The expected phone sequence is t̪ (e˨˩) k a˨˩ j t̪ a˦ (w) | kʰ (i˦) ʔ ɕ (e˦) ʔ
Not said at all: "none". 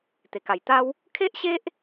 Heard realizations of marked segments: e˨˩, w, e˦, e˦

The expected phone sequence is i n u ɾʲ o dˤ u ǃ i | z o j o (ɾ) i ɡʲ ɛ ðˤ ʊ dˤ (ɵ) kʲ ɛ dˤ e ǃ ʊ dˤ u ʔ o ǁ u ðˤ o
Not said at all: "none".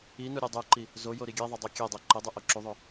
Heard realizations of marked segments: ɾ, o

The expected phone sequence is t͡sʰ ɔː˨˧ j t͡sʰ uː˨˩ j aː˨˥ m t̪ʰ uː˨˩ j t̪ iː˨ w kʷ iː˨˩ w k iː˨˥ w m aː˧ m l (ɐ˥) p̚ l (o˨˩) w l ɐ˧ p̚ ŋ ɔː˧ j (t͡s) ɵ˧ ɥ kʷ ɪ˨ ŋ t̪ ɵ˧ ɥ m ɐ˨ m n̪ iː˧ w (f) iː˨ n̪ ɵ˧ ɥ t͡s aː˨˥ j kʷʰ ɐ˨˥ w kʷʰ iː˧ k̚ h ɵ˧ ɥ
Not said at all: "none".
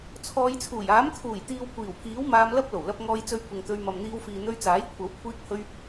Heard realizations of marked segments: ɐ˥, o˨˩, t͡s, f

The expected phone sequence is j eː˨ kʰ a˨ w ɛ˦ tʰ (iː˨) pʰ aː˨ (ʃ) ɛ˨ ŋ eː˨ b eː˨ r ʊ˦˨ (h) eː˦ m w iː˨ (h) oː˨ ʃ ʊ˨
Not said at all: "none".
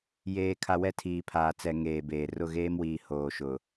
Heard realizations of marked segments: iː˨, t͡s, ɣ, h

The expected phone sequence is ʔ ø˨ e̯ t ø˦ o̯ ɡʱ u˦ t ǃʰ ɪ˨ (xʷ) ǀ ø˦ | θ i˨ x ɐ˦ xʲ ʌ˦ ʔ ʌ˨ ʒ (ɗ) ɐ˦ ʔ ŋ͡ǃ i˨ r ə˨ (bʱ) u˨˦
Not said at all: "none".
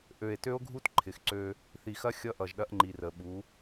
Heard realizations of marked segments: x, ɗ, ɓ

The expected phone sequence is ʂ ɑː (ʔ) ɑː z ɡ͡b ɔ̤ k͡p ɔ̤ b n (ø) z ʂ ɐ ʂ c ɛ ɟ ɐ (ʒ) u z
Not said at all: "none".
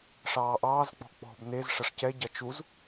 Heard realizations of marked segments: ʔ, e, t͡ʃ

